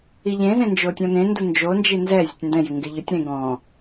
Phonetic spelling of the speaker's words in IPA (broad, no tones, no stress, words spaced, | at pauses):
iʎẽzẽ nd͡ʒotʲɔ̃nẽndu nd͡ʒond͡ʒi nzɛ zʲʊtʲndɛ̃jɪ ŋɡɪʎʊtʲɾẽ ɡɔ̃